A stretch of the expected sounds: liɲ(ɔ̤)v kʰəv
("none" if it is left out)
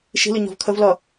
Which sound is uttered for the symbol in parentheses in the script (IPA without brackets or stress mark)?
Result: ɔ̤